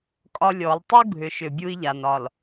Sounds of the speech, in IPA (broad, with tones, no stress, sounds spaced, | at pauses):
kʼ ɒ˦ lʲ ɔ˨˦ lˠ tˤ u˦ ɡʱ ʏ˨ ʃ ʏ˨ bʲ u˦ i̯ ʎ a˨ n ɒ˨ l